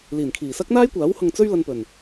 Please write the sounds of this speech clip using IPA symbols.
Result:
l iː˨˩ n kʰ iː˨˩ s ɐ˥ k̚ n̪ aː˥ j kʷ aː˨˥ w h ʊ˧ ŋ t͡s ɵ˥ ɥ l ɐ˧ n p ɵ˨˩ n

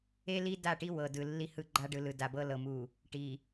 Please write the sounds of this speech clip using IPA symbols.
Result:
e˦ l i˦ d a˦˨ ʈ i˦ w ɤ˨ d ɯ˨ lː i˦ h ɯ˦ ɡ͡ǃ a˦ ɖ ɯ˨ l ɯ˨ d a˨ b ɤ˦ l ɤ˨ m u˨ | ʈ i˨

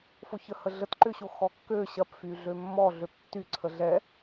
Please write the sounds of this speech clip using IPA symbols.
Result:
f o ç ə h ə ɮ ə t ǃ ʏ ɕ o x ɔ kː ø ɕ ɐ p f y ɮ ø mː ɔ ɮ ø p tː y ǀʰ ə ɮ ɛ

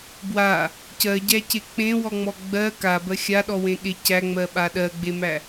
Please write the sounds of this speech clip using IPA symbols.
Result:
b w a | c ɜ ɟ æ c e k͡p ẽ w ɔ ŋ͡m ɔ ɡ͡b ɜ k a b ɜ xʲ a ɗ ɔ w ẽ ɠ e c æ ŋ͡m ɜ ɓ a ɗ ɜ ɡ͡b e m æ

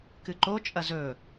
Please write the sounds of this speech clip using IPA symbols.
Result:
k ɨ ǃ o t͡ʃʼ ɐ z ɵ

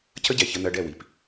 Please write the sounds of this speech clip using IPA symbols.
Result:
cʰ ə˦ ɟ ɛ˨ ç ə˧ n̪ ɜ˧ ɖ ɛ˦˨ w i˨ p

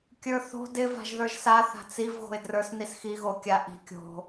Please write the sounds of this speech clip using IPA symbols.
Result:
kʲ ə˞ θ o̤ d ɪ v a̤ ʒ ð ə˞ ʒ s a θ a̤ t͡s i v ɣ o̤ ɪ̯ d r ə˞ s n i s x i ɣ o kʲ a ʔ i̤ kʲ o̤

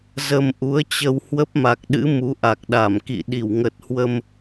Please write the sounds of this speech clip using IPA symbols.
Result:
z ə˧ m ʔ u˨˦ ə̯ t͡ɕ ə˧ w h w ə˦˥ p̚ m a˨˩ k̚ ɗ ɨ̰˧˥ m u˨˦ ʔ a˨˩ k̚ ɗ a˧˩ m k ḭ˧˨ ɗ i˧˩ w ŋ ə˨˩ t̚ h w ə˧ m

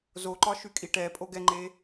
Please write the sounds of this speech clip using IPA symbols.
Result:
z o ǃ ɒ ʃ y kʼ i ʈ ɛ pʼ o ɡ ɛ ŋ͡ǃ e

